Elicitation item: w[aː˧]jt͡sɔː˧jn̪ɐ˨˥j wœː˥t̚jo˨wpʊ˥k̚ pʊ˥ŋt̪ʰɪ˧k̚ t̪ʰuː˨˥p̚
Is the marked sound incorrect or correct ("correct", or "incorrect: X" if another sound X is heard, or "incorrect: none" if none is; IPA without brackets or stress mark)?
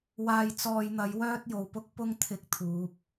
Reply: correct